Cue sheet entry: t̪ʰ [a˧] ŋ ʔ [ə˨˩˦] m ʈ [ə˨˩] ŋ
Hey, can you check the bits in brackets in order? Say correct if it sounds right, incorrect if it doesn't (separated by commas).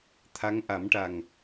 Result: incorrect, incorrect, incorrect